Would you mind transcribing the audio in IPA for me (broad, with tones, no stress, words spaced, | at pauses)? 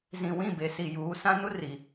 zĩ˨wĩ˦˨be˨ si˨juː˨˦sã˦ nu˦ ri˨